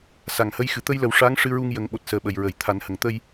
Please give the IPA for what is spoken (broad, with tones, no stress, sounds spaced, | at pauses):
s a˨˩˨ ŋ h ə˧˥ j x ɨ˨˩ t̪ ə˧ j l ə˨˩ w ʂ a˧˥ ŋ ʂ ɨ˧ ɹ u˧ ŋ j ə˨˩˦ ŋ ɓ o˨˩ t̚ s əː˨˩˦ ɓ ə˨˩˨ j ɹ ə˨˩˨ j t̪ʰ a˨˩˦ n h ə˨˩˨ ŋ t̪ ə˧ j